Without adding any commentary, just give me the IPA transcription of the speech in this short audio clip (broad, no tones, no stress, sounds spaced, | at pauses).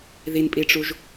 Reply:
ð i n pʼ i ʈ͡ʂ u ʒ